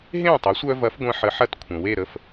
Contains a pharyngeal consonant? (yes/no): yes